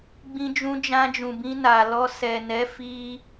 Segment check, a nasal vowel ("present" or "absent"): present